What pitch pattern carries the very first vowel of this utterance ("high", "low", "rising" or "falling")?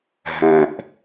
low